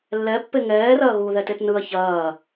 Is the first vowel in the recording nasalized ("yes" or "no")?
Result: no